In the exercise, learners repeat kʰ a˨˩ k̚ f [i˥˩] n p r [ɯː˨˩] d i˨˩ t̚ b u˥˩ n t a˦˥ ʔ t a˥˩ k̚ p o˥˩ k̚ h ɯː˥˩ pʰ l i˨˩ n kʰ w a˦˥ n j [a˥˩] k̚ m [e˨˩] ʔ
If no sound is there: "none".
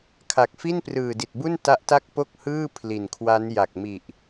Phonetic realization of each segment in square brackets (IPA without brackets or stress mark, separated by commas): i˥˩, ɯː˨˩, a˨˩, i˨˩